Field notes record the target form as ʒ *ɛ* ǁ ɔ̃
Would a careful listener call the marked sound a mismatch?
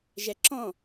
no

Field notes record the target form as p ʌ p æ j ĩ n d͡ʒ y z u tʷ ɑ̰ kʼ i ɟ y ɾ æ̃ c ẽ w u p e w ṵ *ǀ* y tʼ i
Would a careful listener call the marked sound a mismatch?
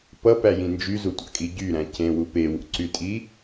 no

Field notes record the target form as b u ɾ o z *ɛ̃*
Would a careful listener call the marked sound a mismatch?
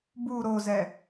yes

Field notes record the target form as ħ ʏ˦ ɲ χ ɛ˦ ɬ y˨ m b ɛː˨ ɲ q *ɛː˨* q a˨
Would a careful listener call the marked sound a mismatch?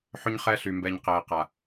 no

